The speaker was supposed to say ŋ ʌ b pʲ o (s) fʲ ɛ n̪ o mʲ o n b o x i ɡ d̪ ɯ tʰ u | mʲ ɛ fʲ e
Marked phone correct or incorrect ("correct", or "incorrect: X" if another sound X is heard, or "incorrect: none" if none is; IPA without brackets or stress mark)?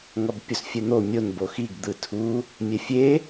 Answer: correct